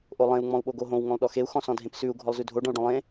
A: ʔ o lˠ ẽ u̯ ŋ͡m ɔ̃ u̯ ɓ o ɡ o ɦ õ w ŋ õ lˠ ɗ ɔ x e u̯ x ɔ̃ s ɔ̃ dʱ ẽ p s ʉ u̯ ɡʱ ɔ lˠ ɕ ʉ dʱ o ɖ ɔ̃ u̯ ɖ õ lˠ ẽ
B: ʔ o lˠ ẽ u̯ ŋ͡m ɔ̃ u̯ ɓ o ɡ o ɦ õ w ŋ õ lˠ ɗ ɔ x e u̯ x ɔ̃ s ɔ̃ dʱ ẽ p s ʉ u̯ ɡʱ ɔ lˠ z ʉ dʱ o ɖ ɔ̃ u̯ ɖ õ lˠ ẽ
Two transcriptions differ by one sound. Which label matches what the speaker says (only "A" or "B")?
B